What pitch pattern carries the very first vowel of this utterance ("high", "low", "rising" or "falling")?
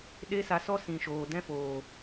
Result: high